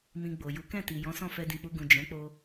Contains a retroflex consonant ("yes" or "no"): no